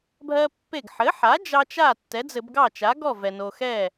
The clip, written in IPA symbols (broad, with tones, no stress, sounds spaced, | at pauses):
bʱ ɜ˦ pː e˧˩ ɡ ħ ɘ˩˥ ħ a˩˥ d͡ʒ ɑ˦ t͡ʃ a˥˩ tː ɛ˩˥ d͡z ɘ˧˩˧ b ɡ ɑ˥˩ t͡ʃ a˩˥ ɡ ɔ˥˩ v ɛ˩ n o˩ x ɛ˥˩